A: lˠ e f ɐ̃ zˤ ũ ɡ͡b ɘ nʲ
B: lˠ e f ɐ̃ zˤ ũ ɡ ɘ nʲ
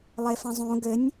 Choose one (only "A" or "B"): B